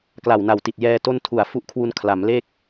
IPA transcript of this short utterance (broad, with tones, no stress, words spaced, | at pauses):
kla˨˩wna˨˩wti˨˩t̚ jɛː˧ to˥˩ntʰu˨˩a̯ fu˦˥ʔkʰwu˧n kʰla˩˦m le˥˩k̚